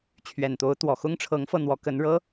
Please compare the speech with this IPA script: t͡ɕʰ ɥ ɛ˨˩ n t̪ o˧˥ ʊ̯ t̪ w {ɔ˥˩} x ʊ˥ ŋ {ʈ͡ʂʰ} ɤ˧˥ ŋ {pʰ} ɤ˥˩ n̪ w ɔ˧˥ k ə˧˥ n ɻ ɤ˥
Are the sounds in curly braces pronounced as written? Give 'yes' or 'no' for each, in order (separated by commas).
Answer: no, yes, no